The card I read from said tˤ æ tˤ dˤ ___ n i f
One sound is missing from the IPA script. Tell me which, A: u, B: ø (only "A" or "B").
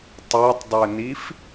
B